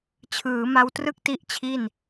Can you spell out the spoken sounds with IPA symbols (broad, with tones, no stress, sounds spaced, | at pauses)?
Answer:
t͡ɕʰ ɯː˩˦ m a˧ w t r ɯ˥˩ k̚ t i˦˥ ʔ t͡ɕʰ i˥˩ n